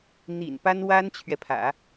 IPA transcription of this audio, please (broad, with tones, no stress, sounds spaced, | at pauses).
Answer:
n̪ ḭ˨˩ n p a˥ n w a˥ n t͡ɕʰ ɥ ɛ˨ pʰ ä̰˨˩˦